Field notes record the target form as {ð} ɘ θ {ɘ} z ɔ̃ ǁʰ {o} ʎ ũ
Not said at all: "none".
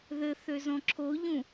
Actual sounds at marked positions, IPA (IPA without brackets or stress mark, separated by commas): ð, ø, o